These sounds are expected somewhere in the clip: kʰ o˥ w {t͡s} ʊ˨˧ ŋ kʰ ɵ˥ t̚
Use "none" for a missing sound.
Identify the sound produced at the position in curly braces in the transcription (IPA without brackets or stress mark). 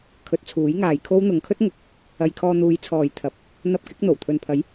n̪